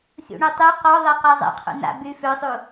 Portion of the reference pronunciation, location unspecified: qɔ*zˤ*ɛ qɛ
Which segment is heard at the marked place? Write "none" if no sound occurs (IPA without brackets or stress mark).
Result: ðˤ